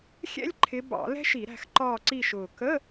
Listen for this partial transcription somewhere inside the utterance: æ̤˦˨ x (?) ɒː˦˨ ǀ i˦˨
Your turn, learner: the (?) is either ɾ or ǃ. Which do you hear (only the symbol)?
ǃ